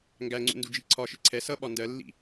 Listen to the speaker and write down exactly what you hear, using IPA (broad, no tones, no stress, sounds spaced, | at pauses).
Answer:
ŋ ɡ æ ŋ͡ǀ ṵ n d u d͡ʒ i ǀʰ ɒ ʃ ɪ ǀʰ ɛ s ʌ ɓ ɒ n d ɜ lː ḭ